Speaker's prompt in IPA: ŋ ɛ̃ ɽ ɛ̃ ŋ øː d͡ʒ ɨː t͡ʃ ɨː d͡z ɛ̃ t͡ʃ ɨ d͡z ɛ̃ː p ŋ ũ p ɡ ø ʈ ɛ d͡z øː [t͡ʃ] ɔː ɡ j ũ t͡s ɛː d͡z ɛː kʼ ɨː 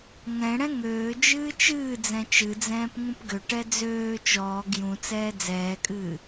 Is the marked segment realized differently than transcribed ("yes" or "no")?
no